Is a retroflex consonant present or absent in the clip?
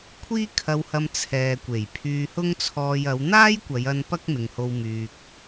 absent